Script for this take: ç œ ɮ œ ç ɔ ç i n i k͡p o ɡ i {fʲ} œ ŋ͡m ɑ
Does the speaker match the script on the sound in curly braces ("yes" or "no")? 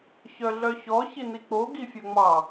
yes